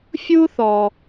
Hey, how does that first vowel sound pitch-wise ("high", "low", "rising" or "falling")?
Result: high